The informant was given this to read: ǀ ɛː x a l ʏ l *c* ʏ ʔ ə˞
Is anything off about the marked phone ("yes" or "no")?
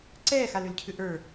yes